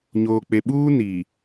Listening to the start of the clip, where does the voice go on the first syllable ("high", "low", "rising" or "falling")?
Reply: low